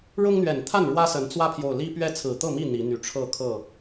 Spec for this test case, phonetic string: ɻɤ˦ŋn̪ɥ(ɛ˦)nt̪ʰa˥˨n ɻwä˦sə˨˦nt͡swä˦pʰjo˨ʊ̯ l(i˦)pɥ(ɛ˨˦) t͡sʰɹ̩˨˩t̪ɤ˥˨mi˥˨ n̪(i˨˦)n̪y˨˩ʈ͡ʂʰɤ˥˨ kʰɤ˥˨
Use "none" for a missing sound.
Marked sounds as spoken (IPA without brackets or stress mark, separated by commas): ɛ˨˩, i˦, ɛ˦, i˨˦